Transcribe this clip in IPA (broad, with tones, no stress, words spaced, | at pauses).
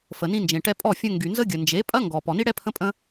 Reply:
fə˨nĩ˧ nd͡ʒẽ˨ʈɛ˧pʼɔ˦˨ fʲə̃˧ŋɡy˨ nzə˦ɡʲə˨ nd͡ʒe˨˦pʼɐ˦ŋɡɔ˨ pɔ˨ni˦ɽɛ˦ pʰə̃˦pʼə̃˦